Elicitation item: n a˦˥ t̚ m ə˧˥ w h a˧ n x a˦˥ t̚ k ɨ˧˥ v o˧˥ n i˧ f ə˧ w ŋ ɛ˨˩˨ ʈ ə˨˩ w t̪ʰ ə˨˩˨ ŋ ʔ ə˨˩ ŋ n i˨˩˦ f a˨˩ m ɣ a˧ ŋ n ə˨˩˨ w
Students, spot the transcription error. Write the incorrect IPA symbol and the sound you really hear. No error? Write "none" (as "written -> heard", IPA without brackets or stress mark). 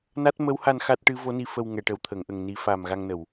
k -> ʈ